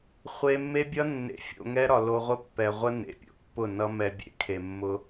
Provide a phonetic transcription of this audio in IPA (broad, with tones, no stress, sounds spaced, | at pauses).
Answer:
χʷ e˧ mː e˦ bʲ ʌ˦ nː ḛ˧ fʲ o̰˧ ŋ ɛ˦ ɾ ɒ˨ l o˧ ʁʷ ə˦ pː ɛ˨ ʁʷ ə˦ n ḛ˨ pʲ o̰˨ pː ʊ˦˨ n ʌ˦ m ɛ˧ bʲ ḛ˨ kʰ e˨ mː ʊ˧